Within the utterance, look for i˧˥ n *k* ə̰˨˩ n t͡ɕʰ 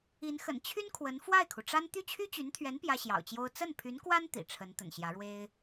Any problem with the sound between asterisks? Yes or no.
yes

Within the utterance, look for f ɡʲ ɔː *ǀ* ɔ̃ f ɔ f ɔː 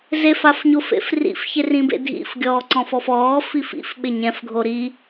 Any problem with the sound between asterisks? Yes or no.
no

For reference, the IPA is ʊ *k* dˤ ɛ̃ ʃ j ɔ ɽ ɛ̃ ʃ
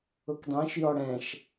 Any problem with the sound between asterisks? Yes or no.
no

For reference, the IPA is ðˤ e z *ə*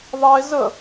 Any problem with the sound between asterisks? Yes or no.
no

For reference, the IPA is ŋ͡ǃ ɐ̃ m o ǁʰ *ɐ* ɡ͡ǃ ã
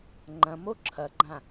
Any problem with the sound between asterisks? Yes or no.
no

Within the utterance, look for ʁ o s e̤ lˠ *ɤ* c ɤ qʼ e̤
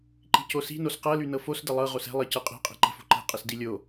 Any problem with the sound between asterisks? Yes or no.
no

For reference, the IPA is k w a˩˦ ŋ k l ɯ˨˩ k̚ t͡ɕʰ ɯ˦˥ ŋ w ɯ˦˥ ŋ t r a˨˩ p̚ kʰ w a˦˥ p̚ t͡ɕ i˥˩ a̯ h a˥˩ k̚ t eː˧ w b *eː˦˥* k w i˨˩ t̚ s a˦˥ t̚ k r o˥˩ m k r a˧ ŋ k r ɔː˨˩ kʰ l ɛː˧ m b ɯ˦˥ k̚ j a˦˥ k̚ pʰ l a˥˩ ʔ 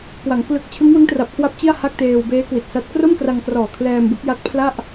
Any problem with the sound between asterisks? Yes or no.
no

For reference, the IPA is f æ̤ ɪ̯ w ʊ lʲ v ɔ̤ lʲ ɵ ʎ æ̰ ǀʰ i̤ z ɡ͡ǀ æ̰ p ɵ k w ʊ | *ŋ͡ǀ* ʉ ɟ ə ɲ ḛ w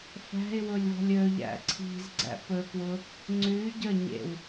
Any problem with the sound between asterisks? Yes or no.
no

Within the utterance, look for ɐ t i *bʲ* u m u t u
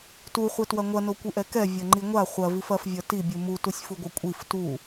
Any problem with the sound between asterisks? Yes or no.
no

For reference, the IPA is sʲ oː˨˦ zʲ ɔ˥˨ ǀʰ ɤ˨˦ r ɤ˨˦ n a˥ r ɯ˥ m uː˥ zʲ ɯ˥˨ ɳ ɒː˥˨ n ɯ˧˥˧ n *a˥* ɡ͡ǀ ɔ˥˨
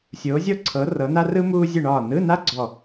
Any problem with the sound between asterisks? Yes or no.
no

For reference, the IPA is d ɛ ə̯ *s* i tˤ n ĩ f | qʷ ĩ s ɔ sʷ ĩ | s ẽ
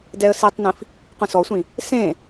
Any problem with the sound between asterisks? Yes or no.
no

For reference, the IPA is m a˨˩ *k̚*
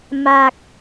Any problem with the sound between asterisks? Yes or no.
no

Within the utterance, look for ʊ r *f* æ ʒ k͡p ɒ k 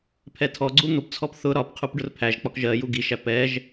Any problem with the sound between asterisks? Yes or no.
yes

